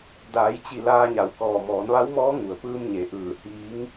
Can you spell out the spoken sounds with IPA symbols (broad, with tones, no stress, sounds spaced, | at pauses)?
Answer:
d aː˩˧ j t͡ɕ i˧˩ l aː˧ ɲ a˩ w k ɔː˧˩ m ɔː˩˧ n ʋ a˧˥ w m ɔː˧˥ ŋ u˩ ə̯ p ɯː˧ m ɲ e˩ ʔ ɯː˧˩ h iː˧˥ ŋ